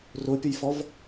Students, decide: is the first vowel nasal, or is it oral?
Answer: oral